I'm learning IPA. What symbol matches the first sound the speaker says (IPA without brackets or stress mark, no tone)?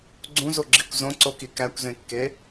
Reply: ɡ͡ǀ